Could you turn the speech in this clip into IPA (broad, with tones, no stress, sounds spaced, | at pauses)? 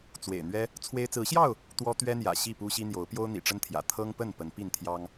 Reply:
t͡s w ḛ˨˩ ɪ̯ n̪ ɥ ɛ˦ | t͡sʰ w e˦ ɪ̯ t͡s ɹ̩˨˦ ɕ j ɑ˥˨ ʊ̯ | t̪ w ɔ˦ t̪ ɥ ɛ˦ n̪ j ä̰˨˩ ɕ i˥˨ p u˦ ɕ i˦ n̪ j o˨˦ ʊ̯ p j o˦ ʊ̯ n̪ ḭ˨˩ ʈ͡ʂ ə˦ n t̪ʰ j ä̰˨˩ t̪ʰ ɤ˦ ŋ p ə˥˨ n p ə˨˦ n p i˥˨ n t̪ʰ j ɑ˦ ŋ